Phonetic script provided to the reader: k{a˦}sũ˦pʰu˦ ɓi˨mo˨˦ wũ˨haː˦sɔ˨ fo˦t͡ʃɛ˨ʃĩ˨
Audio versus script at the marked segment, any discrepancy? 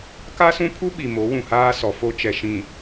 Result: no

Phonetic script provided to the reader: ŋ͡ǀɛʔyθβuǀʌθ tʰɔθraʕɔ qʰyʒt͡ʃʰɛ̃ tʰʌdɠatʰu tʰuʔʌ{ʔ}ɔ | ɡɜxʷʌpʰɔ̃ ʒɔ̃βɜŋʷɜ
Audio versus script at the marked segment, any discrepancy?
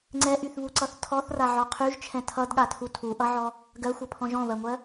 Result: yes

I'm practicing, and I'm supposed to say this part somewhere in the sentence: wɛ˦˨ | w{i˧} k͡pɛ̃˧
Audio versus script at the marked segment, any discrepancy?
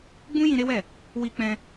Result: no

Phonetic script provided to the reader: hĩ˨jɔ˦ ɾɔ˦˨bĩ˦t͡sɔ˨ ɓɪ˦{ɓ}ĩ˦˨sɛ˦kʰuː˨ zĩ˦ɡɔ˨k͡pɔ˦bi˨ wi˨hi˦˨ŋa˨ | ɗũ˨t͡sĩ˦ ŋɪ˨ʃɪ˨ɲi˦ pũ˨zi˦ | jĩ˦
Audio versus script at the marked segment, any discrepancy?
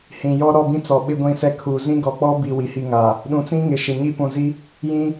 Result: yes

